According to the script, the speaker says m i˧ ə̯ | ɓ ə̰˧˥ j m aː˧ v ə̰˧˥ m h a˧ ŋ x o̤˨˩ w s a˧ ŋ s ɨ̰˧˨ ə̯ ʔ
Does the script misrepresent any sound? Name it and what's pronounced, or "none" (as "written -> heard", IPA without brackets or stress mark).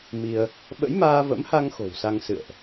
none